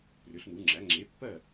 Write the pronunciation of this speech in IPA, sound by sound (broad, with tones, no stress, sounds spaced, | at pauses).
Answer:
p r ʏ˩˥ ɬ n u˩˥ ŋ͡ǁ æ˩˥ ŋ͡ǁ e˩˥ pː ɜ˥˩